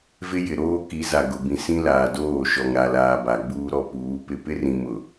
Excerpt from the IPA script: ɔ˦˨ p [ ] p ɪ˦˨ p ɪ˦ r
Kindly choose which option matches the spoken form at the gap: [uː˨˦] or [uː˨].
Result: uː˨˦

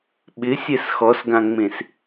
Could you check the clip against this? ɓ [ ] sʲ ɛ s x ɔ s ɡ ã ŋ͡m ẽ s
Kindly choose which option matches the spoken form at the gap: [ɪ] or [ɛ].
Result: ɪ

